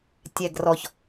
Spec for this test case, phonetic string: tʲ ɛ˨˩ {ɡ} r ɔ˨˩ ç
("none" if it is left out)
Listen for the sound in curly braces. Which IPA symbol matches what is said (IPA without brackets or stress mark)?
ɡ